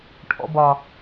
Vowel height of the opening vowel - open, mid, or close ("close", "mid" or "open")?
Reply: mid